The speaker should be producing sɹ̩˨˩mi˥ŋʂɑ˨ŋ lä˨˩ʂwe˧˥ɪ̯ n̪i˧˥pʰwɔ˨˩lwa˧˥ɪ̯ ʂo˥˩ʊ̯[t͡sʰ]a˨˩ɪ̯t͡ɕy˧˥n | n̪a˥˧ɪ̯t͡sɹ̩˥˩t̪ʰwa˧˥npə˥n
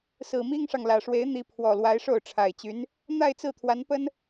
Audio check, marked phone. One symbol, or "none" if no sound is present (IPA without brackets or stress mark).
ʈ͡ʂʰ